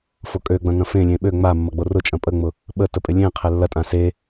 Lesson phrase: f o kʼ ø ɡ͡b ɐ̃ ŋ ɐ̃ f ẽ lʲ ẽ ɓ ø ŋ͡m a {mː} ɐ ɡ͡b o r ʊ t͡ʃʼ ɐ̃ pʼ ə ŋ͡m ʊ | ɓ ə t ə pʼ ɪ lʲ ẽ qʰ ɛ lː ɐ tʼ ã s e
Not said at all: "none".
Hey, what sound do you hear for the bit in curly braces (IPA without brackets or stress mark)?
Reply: mː